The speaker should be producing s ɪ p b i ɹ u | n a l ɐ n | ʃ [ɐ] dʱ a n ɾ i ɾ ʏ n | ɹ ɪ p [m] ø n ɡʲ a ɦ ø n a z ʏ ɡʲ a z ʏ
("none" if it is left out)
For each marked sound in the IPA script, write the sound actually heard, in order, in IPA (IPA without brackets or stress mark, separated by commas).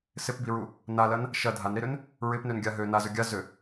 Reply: ɐ, n